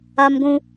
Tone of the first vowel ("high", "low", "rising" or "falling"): high